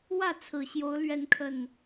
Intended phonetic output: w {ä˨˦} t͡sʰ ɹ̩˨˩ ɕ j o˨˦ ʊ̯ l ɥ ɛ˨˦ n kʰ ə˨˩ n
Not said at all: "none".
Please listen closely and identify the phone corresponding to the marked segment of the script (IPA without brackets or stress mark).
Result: ä˥˨